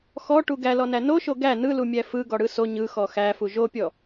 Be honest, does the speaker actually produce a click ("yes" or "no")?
no